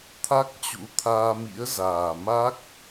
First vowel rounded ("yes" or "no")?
no